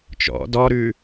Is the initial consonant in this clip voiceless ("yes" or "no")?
yes